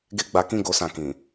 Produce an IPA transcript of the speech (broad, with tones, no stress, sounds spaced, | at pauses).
ɡ e˦ ɡ͡b a˧ k ĩ˦ ɡ o˦ s ã˦˨ k ĩ˨